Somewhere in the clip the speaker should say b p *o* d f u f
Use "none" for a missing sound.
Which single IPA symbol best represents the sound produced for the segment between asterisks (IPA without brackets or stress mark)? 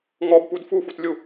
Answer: u